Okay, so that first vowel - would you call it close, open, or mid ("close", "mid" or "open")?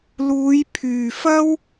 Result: close